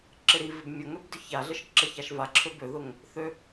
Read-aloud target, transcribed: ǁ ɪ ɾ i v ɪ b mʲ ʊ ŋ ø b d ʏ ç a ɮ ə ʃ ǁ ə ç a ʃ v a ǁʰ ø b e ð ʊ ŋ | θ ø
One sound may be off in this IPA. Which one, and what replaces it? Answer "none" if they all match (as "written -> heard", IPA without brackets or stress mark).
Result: e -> ø